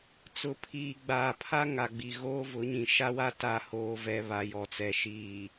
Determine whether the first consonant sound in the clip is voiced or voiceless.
voiceless